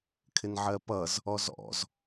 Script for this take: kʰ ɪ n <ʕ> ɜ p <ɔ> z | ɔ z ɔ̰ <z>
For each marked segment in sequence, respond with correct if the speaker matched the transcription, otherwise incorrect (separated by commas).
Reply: correct, incorrect, correct